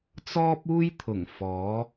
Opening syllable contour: high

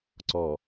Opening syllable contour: low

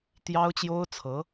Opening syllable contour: high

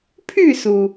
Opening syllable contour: falling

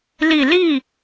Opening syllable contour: low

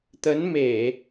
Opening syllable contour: rising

